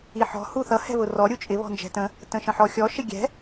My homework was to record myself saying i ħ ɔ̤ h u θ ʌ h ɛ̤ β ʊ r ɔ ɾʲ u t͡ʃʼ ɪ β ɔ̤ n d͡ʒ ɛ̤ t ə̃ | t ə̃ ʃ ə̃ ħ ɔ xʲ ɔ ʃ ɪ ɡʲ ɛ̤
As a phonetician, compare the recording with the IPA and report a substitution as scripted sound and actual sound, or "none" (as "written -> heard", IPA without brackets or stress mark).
none